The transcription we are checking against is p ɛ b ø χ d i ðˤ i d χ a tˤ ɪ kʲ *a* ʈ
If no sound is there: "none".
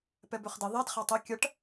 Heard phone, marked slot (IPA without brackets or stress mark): ɐ